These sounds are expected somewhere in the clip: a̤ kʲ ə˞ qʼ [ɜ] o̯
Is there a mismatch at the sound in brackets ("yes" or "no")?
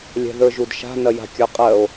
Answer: no